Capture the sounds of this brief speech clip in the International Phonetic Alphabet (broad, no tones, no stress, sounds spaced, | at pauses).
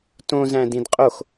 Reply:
t õ z æ̃ d ĩ d qʼ o x